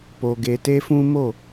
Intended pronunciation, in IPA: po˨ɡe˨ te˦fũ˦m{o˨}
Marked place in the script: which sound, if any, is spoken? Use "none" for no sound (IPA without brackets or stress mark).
o˦˨